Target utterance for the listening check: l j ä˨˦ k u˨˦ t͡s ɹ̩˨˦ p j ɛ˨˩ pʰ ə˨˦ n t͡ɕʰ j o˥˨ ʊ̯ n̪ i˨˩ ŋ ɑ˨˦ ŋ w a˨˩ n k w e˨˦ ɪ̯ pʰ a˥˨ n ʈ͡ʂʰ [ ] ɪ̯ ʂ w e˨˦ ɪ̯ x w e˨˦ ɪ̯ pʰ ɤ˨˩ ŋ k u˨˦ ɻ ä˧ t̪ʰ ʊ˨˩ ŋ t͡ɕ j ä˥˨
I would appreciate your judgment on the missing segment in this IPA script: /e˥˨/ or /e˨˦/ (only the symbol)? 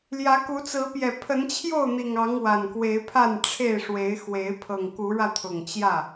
e˥˨